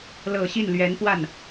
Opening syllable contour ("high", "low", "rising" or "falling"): low